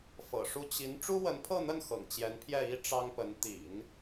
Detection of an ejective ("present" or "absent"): absent